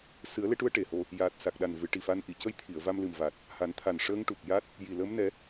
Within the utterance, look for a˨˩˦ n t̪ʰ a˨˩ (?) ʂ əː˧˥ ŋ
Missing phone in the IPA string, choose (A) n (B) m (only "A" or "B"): A